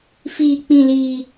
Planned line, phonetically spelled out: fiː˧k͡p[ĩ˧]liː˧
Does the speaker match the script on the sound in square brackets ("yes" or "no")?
yes